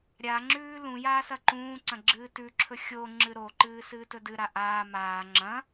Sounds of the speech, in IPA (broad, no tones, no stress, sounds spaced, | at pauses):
ɾʲ a ŋ͡ǁ ʉː l ũ j aː s ɐ ǃ ũː ǀ ɐ̃ ɡ͡ǁ ɨː t ʉ ǁʰ ɵ xʲ o ŋ͡ǁ ɨ ɾ o ǃ ɨː s ɨː t ɵ d ɨ ɾ a ʔ aː m aː ŋ͡ǁ ɐ̃